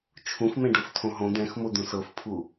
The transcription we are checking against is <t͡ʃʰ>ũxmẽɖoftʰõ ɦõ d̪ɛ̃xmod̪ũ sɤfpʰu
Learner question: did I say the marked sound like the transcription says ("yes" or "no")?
yes